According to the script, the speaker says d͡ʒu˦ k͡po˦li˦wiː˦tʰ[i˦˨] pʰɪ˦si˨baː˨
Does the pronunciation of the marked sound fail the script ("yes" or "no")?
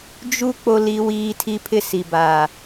yes